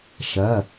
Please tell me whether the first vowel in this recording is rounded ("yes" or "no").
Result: no